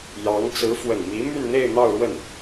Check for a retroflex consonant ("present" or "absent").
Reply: present